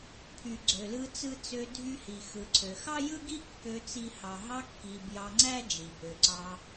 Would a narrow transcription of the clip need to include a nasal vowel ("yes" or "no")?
no